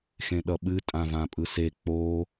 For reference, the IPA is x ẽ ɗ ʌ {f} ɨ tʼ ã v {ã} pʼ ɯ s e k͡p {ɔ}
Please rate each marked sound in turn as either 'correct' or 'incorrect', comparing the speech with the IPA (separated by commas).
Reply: incorrect, correct, incorrect